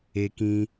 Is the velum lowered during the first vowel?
no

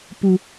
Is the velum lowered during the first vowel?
no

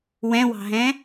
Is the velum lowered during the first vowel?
yes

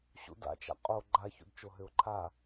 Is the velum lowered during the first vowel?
no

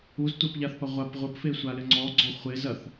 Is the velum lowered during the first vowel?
no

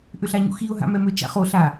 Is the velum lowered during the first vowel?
no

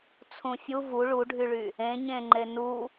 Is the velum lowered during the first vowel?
yes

